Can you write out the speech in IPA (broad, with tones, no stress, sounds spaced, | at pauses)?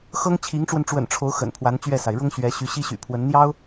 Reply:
x ɤ˥ ŋ t͡ɕʰ i˧˥ ŋ ʈ͡ʂ w ə˧ n ʈ͡ʂ w ə̰˨˩ n ʈ͡ʂʰ o˧˥ ʊ̯ x ə̰˨˩ n pʰ w a˧˥ n t͡ɕ ɥ ɛ˥˩ s a˩ ɪ̯ ɻ ʊ˥ ŋ ɕ ɥ ɛ˧˥ ɕ y˧˥ ɕ i˥ ɕ y̰˨˩ pʰ w ə˧˥ n n̪ j ɑ˥ ʊ̯